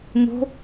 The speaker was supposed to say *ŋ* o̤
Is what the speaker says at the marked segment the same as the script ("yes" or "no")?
yes